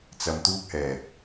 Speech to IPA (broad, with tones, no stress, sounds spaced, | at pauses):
t͡s ɐ˧ m t̪ uː˥ k̚ h ɛː˨ k̚